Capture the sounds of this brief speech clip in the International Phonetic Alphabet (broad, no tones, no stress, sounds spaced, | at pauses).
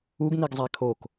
u ɡ n i ɡ zˤ æ kʰ o k